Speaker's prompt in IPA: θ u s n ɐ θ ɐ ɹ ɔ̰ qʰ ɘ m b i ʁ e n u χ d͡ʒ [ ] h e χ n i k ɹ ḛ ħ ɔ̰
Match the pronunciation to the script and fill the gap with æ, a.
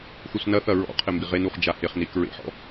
a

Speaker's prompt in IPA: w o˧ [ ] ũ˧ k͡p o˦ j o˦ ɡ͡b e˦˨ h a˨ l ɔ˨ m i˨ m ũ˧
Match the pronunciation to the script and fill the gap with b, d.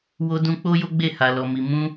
d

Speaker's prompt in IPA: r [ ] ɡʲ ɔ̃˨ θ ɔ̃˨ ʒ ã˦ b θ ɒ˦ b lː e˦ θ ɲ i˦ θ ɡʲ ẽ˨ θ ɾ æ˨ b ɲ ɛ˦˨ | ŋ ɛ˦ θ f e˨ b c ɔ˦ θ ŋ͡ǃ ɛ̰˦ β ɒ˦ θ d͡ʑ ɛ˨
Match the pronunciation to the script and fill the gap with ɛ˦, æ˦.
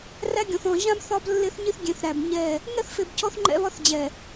æ˦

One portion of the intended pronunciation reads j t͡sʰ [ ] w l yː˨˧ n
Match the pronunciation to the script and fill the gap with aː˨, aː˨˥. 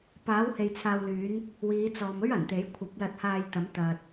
aː˨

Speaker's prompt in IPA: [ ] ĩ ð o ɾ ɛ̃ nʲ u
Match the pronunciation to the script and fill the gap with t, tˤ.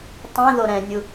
tˤ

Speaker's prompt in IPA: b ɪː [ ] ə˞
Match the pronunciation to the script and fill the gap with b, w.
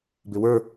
w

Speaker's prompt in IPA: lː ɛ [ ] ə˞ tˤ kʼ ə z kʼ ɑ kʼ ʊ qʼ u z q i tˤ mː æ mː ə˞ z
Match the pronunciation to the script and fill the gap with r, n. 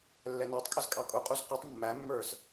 n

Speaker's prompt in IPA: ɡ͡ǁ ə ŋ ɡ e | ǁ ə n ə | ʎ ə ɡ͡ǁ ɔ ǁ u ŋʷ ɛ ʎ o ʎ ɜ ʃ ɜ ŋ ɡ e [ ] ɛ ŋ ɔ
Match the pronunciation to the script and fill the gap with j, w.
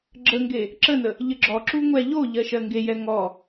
j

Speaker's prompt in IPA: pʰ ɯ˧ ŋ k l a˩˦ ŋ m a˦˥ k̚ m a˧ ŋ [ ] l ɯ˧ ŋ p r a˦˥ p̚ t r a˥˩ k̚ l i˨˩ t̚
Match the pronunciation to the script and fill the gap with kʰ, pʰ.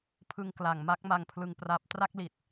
pʰ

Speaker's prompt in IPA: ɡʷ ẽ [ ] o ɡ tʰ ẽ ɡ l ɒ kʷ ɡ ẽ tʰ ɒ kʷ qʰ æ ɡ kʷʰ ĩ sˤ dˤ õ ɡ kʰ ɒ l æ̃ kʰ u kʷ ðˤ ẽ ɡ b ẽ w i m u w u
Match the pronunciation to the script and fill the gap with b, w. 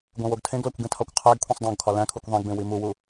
w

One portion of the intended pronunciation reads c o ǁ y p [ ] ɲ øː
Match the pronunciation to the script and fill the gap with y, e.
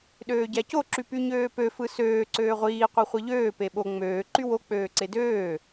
y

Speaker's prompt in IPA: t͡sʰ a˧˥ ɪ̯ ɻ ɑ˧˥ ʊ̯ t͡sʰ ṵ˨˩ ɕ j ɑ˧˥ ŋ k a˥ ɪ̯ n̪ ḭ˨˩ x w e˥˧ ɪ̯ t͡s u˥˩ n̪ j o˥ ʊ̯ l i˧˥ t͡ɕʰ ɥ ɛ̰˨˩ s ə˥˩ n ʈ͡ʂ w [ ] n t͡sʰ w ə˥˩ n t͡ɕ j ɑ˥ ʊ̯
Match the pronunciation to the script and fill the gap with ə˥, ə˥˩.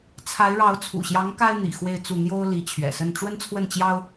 ə˥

